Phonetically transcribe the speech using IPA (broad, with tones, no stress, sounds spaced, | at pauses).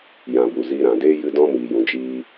j ã˨ b u˨ z iː˧ ɾ ã˨ d eː˦ j ɨ˧ d ɔ̃˧ m iː˨ j ũ˨ d͡ʒ iː˧